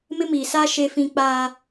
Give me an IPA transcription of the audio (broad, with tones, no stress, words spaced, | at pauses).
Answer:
mɪ˦miː˨saː˦ ʃe˦fĩ˦ k͡paː˦